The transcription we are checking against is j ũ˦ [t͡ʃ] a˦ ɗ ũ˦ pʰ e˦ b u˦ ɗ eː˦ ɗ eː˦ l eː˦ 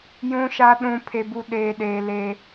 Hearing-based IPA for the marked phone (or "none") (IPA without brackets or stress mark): ʃ